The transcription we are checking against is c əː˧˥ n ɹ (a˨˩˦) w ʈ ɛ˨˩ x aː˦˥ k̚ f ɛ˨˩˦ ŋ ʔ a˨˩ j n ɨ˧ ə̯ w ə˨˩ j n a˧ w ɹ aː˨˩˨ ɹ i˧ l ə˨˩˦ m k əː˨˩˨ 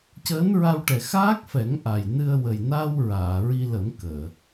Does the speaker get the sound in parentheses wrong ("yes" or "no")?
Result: yes